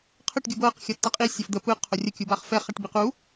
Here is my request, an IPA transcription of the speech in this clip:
qʰ ə ʈ ɡʲ u b ɤː q xʲ ʌ tː ʌ qʼ i sʲ ɤ f d̪ ə p ɯ qʰ o rʲ ə kʲ u b aː χ f ɛ χ a ʈ b i q u

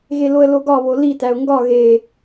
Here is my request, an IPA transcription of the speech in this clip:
ɣ e l o ə̯ l o ɡ ɒ β o l i t æ ʊ̯ ŋ ɡ ɒ ɣ e

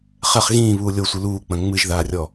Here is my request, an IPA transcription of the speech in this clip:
χ ɛ χ ɣ ĩː β uː lʲ o sʷ ɨ l uː k͡p ɐ̃ ŋ͡m ɨ ʒ ð aː rʲ ɔ

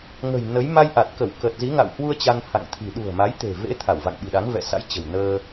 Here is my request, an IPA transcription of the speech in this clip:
ŋ ə̤˨˩ j n ə˨˦ j m a˧ j ʔ a˨˩ t̚ k ə˧˩ w k ə˨˩ t̚ z i˨˦ ŋ a̰˧˨ w h w u˧ ə̯ t͡ɕ a˧ n h a̰˧˨ ŋ t̪ʰ i̤˨˩ ɗ ṳ˨˩ ə̯ m a˨˦ j t̪ e̤˨˩ v ḛ˧˥ t̪ʰ a˧˩ w v a̰˧˨ ŋ ɓ i̤˨˩ ɗ a˨˦ ŋ v ɛ̰˧˨ s a̰˧˥ j t͡ɕ ə̤˨˩ w n əː˧

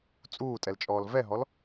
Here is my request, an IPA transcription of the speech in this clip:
t͡sʼ uː tʼ ɛ l t͡ʃʼ ɔː l v ɛ ɦ ɔ l

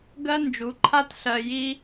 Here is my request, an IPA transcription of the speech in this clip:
ɡ ɜ˦ n d͡ʒ u˨˦ ǃʰ a˦ t ɬ ɜ˧ j i˦

